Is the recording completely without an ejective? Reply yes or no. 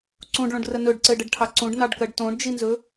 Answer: yes